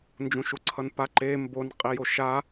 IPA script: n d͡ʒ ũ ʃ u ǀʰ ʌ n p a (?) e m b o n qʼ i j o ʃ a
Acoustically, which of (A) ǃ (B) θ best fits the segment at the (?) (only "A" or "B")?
A